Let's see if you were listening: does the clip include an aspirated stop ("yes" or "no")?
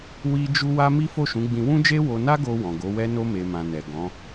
no